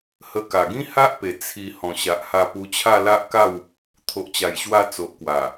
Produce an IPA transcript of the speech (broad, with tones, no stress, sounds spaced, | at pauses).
h ə˧ k a˨˩ ɡ ĩ˦ h a˦ ʔ p e˨˩ t͡sʰ i˧ h ɔ̃˨˩ ɕ a˨ ʔ h a˧ p u˧ t͡ɕʰ a˥˧ l a˦ ʔ k a˥˧ w | t̪ʰ o˨ ʔ t͡ɕ a˨˩ j ɕ w a˧ t͡s o˨ ʔ k w a˨˩